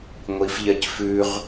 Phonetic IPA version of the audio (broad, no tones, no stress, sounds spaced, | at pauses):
ŋʷ i f ʎ ɜ c f ʉ ʁ